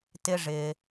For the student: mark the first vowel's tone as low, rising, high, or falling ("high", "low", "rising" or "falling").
high